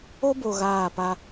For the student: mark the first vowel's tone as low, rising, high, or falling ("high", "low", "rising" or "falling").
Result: high